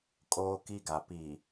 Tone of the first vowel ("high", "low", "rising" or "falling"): high